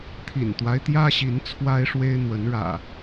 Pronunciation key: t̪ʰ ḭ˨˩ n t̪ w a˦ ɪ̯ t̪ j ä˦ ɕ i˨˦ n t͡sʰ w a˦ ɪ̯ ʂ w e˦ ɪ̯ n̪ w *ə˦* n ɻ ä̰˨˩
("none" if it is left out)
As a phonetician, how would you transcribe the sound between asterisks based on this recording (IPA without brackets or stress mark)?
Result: ə˨˦